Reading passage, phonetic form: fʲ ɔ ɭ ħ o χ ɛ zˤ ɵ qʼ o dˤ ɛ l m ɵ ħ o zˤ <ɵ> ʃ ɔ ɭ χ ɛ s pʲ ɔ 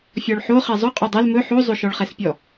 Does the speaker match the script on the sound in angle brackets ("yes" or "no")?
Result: yes